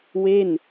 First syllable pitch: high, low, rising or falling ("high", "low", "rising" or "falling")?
falling